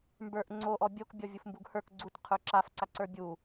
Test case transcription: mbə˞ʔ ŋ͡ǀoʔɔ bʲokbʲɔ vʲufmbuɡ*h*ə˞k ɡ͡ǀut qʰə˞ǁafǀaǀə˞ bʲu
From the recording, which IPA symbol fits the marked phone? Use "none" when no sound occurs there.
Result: h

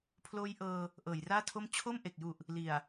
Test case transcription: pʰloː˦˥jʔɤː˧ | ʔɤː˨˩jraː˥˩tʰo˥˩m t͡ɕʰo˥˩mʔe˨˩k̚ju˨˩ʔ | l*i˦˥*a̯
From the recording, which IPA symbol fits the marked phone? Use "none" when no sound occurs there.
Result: i˨˩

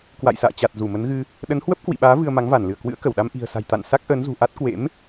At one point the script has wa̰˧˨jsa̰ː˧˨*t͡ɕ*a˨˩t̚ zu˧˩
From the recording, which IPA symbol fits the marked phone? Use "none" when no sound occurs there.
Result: t͡ɕ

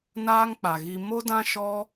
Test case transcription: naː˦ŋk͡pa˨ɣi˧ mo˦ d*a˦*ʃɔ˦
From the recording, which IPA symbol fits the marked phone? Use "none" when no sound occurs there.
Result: ã˦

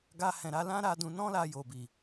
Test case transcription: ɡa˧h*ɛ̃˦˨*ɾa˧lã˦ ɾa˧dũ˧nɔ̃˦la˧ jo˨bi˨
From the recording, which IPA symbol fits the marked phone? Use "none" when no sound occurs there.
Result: ɛ̃˨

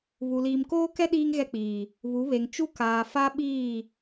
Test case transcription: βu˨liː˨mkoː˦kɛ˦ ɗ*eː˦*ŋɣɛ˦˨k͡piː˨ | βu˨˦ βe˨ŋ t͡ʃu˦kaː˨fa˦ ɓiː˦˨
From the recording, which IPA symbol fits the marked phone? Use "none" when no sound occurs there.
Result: iː˦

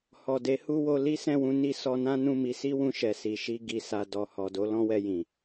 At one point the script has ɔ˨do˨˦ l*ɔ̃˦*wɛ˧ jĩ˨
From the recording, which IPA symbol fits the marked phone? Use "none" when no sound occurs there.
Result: ɔ̃˦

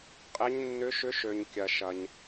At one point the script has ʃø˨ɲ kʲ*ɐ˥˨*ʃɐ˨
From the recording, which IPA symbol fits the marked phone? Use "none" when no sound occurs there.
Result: ɐ˨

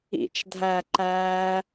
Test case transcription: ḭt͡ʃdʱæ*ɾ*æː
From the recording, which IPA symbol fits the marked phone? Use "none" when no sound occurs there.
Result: ǃ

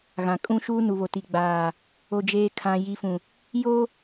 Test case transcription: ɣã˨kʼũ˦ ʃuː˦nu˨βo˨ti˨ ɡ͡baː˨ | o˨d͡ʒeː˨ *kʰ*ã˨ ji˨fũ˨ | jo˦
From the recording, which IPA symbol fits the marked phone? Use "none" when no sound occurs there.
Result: kʰ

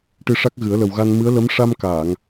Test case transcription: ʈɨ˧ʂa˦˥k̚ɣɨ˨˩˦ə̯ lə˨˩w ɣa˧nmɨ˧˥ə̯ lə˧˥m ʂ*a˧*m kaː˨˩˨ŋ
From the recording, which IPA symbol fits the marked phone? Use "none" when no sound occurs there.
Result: a˧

